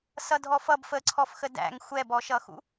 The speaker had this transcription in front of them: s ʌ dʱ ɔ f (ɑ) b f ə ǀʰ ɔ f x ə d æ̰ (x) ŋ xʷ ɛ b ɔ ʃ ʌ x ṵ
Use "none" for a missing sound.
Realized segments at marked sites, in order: ʌ, none

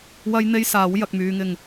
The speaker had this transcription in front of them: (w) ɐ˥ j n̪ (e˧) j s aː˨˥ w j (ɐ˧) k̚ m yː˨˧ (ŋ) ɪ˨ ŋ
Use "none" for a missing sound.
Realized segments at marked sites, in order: w, e˥, ɐ˨, ŋ

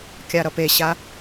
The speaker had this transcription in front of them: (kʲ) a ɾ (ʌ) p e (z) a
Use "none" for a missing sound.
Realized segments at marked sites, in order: kʲ, ʌ, ɕ

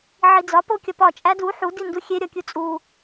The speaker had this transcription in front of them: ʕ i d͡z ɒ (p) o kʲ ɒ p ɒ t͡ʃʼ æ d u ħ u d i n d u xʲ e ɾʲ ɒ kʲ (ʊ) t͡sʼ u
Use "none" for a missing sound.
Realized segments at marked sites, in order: p, u

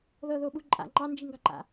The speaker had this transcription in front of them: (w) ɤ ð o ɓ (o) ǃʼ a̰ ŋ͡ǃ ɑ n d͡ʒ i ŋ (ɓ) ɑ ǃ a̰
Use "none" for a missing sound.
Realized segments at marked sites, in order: ð, u, ɡ

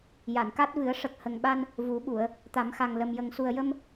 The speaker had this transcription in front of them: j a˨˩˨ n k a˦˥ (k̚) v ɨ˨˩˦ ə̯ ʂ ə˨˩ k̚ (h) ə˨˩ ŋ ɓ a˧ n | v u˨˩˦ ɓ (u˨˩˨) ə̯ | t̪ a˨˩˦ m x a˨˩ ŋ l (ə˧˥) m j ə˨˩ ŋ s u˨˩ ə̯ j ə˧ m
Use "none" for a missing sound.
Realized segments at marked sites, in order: t̚, h, u˨˩˨, ə˨˩

